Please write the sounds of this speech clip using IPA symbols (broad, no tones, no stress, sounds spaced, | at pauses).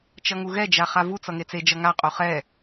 t͡ʃ ʌ ŋ u ɣ ɛ d͡ʒ a χ a v u t͡s ʌ ŋ e t͡s e d͡ʒ ʌ ŋ a qʼ o χ ɛ